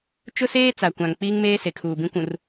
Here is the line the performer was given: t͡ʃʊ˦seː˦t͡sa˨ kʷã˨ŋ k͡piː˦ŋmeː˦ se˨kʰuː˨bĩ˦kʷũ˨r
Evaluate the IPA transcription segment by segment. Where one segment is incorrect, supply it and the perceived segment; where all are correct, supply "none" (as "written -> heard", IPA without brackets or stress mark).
none